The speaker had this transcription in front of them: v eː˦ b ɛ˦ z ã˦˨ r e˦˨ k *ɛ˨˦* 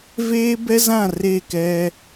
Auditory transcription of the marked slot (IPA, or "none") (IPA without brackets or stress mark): ɛ˦